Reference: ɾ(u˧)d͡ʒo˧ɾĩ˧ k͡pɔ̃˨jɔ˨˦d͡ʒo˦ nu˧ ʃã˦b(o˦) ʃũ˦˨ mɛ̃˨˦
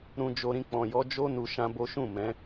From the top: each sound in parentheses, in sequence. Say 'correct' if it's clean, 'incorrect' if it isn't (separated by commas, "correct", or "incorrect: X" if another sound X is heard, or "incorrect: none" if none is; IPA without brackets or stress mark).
incorrect: ũ˧, correct